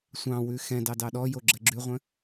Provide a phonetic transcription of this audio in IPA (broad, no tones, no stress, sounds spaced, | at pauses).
sʷ ɑ̃ w ʉ x ɛ̃ d ɑ d ɑ ɗ ɔ j o ɡ͡ǁ ɜ ɡ͡ǁ ʉ ʁʷ ə̃